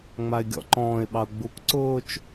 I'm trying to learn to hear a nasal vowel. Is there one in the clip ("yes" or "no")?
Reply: yes